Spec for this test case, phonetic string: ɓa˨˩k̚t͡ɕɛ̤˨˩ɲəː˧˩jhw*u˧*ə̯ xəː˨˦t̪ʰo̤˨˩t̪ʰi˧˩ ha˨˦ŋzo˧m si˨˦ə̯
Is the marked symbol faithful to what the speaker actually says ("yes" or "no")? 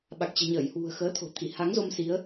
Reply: no